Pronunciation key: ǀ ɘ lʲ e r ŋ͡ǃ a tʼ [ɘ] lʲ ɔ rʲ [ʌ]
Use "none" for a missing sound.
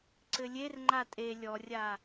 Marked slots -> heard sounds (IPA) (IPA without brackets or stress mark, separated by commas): e, a